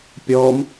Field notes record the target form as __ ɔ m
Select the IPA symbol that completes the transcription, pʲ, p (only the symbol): pʲ